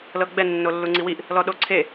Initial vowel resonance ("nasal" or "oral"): oral